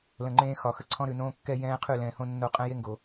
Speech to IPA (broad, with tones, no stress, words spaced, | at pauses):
lə̃˨ŋ͡ǃẽː˦ xɒ˨xə˦ǀʰɔ̃˦ɾʉ˨ nõː˦kːɛ˦jɛ̃ː˦ qʰʉ˦˨lɛ̃ː˨hõ˦nːo˦˨ qʼɛ̃˦je˦ŋɡo˨